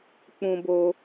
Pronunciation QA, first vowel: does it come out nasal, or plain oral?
nasal